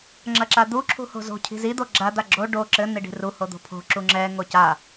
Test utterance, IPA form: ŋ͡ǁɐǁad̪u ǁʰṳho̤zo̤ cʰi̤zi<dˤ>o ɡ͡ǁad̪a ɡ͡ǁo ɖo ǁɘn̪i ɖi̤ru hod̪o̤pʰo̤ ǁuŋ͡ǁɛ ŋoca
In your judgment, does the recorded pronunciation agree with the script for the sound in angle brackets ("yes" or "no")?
no